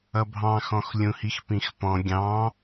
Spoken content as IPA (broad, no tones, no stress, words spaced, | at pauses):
ʌbʱɑ̃xɔ̃x lʲũhixpĩxpɔ̃ ɡʲɑ̃